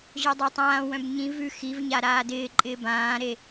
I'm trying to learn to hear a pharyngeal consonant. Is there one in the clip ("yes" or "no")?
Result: no